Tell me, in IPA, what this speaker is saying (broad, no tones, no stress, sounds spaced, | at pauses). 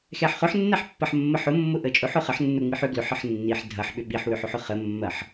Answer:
x ɛ ħ χ ʊ ħ nː ɛ ħ pː ɐ ħ mː ə ħ ʊ mː ʊ ʔ ə t͡ʃʼ ʊ ħ ʊ χ ə ħ nː ʊ ŋ͡m i ħ ʏ ɡ l ʏ ħ ə ħ nː i ħ dʱ ɐ ħ ɓ ʏ ɓ i ħ w ʏ ħ ʊ ħ ʊ χ ə mː ɐ ħ